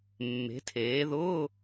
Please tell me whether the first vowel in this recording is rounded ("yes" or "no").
no